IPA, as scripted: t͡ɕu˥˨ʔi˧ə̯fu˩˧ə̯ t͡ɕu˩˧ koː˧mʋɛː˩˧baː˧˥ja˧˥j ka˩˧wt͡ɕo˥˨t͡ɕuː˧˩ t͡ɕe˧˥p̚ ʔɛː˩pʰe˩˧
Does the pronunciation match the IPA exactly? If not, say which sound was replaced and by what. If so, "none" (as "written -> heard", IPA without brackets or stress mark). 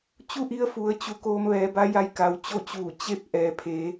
aː˧˥ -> a˧˥